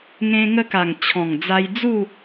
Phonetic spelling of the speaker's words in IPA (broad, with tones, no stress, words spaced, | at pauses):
ŋẽ˧ŋə˧ka˨˩ŋ t͡ɕʰɔ̃˨˩ŋd͡za˧jd͡zu˥˧